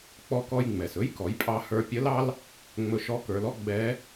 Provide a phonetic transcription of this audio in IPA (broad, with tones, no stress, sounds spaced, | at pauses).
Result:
k͡p ɔ˧ k ɔ˧ j ŋ͡m ɛ˩ s ɵ˧˥ j k ɔ˩˧ j pʼ ɑ˧ h ə˞˧ pʲ ə˧˥ l ɑ˥ l | ŋ͡m ɵ˧˥ ʃ ɔ˧˥ k ə˞˩˧ l ɔ˥ ɡ͡b ɛ˧˥